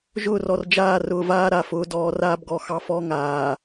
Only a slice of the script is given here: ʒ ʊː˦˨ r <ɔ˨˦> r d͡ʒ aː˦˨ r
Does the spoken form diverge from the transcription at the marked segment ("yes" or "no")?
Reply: yes